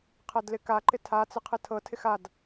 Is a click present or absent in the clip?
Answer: present